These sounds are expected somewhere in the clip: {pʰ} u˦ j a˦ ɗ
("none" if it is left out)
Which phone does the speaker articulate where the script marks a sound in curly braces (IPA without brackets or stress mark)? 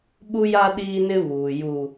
ɓ